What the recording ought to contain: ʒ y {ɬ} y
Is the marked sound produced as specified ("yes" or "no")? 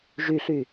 yes